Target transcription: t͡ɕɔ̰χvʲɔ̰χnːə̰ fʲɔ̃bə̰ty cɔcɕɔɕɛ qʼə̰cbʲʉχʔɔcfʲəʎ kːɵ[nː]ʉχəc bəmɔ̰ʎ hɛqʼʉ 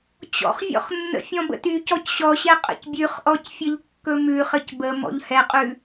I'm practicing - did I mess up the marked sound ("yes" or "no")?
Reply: yes